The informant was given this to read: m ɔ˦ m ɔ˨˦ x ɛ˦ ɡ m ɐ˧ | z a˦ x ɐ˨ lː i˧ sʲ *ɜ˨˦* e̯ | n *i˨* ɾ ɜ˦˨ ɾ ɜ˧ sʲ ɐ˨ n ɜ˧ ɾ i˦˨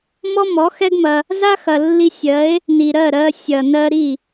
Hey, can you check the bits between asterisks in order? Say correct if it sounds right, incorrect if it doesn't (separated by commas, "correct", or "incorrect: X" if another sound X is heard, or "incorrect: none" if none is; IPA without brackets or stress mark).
correct, correct